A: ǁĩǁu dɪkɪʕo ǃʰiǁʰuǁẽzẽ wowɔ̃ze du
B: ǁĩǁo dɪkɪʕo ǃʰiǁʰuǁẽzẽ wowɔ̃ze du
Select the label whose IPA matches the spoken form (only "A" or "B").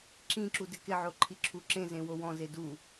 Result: A